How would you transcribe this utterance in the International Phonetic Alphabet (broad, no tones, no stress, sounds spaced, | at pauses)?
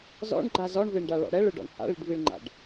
z ɔ̰ ɳ ɡ͡ǃ a z ɔ ɳ v e ɳ ɖ a ɭ ɔ̰ ɽ ɛ ɭ ɯ ɖ ɔ̰ ɳ h a̰ ɭ i ɖ v i ɭ ŋ͡ǃ a̰ ɖ